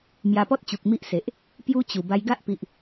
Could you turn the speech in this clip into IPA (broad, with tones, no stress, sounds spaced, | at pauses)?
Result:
m j a˧ p ɔ˦ t̚ t͡ɕ u˨ k̚ m i˦ ʔ s e˨ ʔ | p j u˦ t͡ɕ u˨˩ b a˧ j ɡ a˦ ʔ p i˨ ʔ